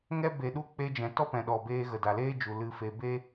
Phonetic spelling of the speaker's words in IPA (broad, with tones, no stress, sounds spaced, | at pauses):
ŋ ɛ˧ b e˨ ɗ u˧ k͡p e˧ d͡ʒ ɛ̃˨ t ɔ˦ p ɛ̃˨ ɗ ɔ˨ b eː˧ ɣ ə˨ d a˨ l eː˦ d͡ʒ u˨ l ɨ˧ f e˧ b e˦